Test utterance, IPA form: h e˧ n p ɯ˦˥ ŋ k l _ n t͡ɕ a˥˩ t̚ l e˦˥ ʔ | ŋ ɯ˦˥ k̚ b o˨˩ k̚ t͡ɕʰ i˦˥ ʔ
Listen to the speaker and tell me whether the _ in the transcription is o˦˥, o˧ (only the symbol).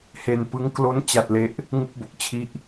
o˦˥